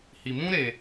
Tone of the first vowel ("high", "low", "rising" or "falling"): low